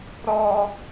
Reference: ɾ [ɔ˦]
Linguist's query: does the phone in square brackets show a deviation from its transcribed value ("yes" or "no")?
no